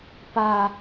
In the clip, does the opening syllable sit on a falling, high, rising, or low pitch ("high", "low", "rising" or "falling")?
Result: high